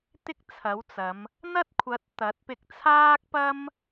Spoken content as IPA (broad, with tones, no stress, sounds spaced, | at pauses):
t̪ ɪ˥ k̚ t͡sʰ ɐ˨˥ w t͡s ɐ˨˧ m | n̪ ɐ˥ t̚ kʷʰ ɐ˨˥ t̚ t̪ ɐ˨˥ t̚ p ɪ˧ k̚ t͡sʰ aː˥ k̚ p ɐ˥ m